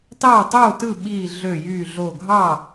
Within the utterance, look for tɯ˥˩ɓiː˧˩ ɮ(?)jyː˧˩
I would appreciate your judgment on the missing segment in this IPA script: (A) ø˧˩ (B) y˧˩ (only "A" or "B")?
A